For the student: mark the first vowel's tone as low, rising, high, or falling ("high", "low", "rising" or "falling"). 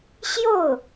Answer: falling